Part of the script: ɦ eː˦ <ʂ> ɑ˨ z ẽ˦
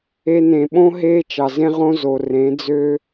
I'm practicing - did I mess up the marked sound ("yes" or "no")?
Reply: yes